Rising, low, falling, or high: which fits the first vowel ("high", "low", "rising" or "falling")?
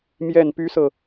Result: low